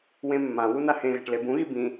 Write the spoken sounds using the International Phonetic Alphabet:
wẽmːãwu nahẽɣa̤ʈ lebũɣi bĩ

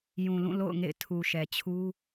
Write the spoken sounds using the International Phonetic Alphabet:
jũ˨lũ˦˨ lo̰˦˨ʊ̯ŋḛ˦˨ɪ̯ tʰu˨ʃɛ˨t͡ɕʰu˦

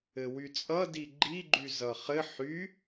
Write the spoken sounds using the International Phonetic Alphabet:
ɘwyt͡sʼʌ diɡ͡ǃi ɡ͡ǃyzʌχɘ ħy

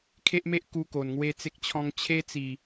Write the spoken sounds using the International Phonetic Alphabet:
kʰe˦ʔme˦ʔku˧ ko˨˩nŋwe˦t͡se˦k̚t͡ɕʰɔ̃˦ŋ t͡ɕʰe˦t͡si˨˩

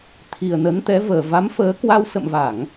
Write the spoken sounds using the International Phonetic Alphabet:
t̪ʰi˨˩ə̯nə˨˦nt̪ɛ˨˦vəː˨˩ va˨˦mfəː˨˦kwa˧w sə̰˧˨mva˧˩˨ŋ

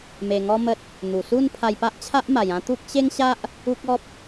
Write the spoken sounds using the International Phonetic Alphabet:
me˧ŋɔ˦mə˦t̚ | n̪u˨˩su˥˧n pʰa˧jpa˦ʔt͡ɕʰa˦ʔ ma˨˩jã˦ t̪u˦k̚ ɕe˦ŋɕa˦ʔ | u˦k̚ ɔ˦p̚

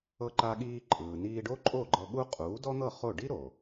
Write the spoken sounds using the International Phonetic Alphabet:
ɤ˧ǃa˧ɠiː˧ ǃʼɯː˩niː˧ɖo˥ ǃʼo˥˩ɡ͡ǃɤ˧ ɠu˥ qʼuː˩˥dɔ˥n̪ɤ˥˩ χo˥˩ ɖi˥ɾo˩

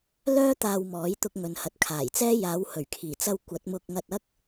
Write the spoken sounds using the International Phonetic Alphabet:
lœː˥ t̪aː˧wmɔː˨˥j t̪ʊ˧k̚ŋɵ˨n hɐ˨t̚kʰaː˨˩jt͡sɛː˥ jaː˨˧whɵ˨˩ɥkʰiː˨˩t͡sɐ˧w kʷɐ˨˥t̚mʊ˧k̚ŋɐ˧t̚ɐ˥k̚

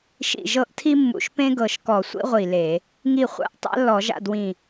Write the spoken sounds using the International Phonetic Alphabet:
ʃḭ˧˩ʒɤ˥˨ʔtʰi˥ mːṵ˧˩ʃpẽ˥ɡɤ˧˩ʃ kɔ˧˩˧sʷḭ˥ ʁʷi˧˩le˧˩˧ | ŋi˧˩χʷa̰˧˩ʔ tˤa̰˥lːɔ˧˩˧ʒa̰˥˨dwĩ˧˩

